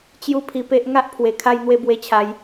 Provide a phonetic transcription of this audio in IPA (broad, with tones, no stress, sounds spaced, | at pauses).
t͡ɕ j u˦ pʰ i˧ p e˦ ʔ ŋ a˦ ʔ pʰ w e˨˩ kʰ a˦ j n̪ w e˦ b w e˧ t͡ɕʰ a˨˦ j